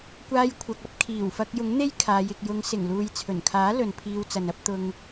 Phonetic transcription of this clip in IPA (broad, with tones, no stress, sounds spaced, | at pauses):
kʷ aː˧ j kʷʰ ɐ˨ k̚ ɐ˧ p̚ kʰ iː˨˩ w f ɐ˧ k̚ j ʊ˨˥ ŋ n̪ e˥ j kʰ aː˨˧ j ɪ˨ k̚ j ʊ˨˧ ŋ s ɪ˨˩ ŋ l uː˨ j t͡sʰ ɵ˨˩ n kʰ aː˨˥ l ɵ˨ n pʰ iː˧ w t͡s ɐ˨ n ɐ˥ p̚ t̪ ʊ˧ ŋ